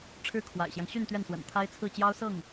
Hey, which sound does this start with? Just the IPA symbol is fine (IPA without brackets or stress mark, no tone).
ʈ͡ʂʰ